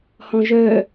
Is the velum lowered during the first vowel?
yes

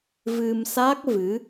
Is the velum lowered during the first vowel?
no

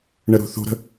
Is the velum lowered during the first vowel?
no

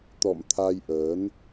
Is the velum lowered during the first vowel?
no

